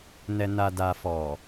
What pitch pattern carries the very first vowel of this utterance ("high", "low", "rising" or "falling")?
low